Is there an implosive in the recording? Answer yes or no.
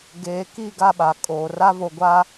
yes